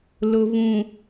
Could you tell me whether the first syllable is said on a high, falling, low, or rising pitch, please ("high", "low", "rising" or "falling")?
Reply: low